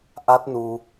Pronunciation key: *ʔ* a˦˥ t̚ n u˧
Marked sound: correct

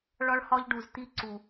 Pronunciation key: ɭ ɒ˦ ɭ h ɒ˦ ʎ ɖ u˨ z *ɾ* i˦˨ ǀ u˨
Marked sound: incorrect: t̪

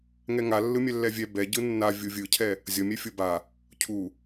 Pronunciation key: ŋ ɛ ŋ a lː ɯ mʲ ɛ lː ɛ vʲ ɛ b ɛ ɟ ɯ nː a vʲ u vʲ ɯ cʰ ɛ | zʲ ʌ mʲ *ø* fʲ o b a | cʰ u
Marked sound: incorrect: ɛ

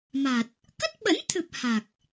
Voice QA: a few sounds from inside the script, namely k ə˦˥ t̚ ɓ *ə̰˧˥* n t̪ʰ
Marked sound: correct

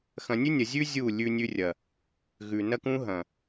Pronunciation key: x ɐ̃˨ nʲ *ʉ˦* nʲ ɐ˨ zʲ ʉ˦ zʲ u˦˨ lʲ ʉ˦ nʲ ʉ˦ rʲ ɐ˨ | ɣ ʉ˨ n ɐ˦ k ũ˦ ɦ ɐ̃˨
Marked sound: correct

